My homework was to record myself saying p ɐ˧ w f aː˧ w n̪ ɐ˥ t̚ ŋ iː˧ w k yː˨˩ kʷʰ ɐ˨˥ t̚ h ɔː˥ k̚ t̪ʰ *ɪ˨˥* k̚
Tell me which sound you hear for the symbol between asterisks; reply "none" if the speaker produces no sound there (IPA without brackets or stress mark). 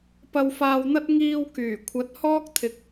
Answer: ɪ˨˥